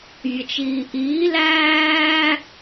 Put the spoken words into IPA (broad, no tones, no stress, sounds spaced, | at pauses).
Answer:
vʲ ə t͡ʃ iː ʔ iː l æː